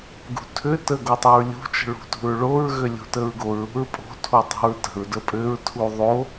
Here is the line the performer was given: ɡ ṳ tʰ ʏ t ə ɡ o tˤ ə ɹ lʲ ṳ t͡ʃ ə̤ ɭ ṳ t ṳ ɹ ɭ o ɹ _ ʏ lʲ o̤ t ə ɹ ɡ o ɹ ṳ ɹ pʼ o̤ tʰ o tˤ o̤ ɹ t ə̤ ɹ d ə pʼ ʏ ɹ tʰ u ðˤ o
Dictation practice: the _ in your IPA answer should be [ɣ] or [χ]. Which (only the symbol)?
ɣ